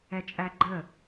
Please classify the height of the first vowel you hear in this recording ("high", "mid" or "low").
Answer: mid